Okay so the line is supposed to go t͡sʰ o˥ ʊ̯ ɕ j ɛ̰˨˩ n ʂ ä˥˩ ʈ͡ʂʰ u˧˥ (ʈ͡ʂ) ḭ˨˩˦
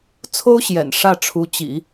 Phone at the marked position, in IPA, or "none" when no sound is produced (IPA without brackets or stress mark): t͡ɕ